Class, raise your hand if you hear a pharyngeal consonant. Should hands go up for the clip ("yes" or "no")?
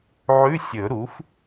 yes